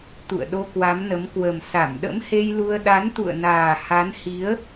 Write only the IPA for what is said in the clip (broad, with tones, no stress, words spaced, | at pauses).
t̪ṵ˧˨ə̯ɗo˧kwa˨˦mnə˨˦m kwə˨˩m sa˧˩mɗə̰˧˥mhe˧jlu˧ə̯ ɗa˨˦nt̪ṵ˧˨ə̯naː˨˩ ha˨˦nhi˨˦ə̯